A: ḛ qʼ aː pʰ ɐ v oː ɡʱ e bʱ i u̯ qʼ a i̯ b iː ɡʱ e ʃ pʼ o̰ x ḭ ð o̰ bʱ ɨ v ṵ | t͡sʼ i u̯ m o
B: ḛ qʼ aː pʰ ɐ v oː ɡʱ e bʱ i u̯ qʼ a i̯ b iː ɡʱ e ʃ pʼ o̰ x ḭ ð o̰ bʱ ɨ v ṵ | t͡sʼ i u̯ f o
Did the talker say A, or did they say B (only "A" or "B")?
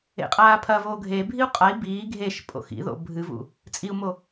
A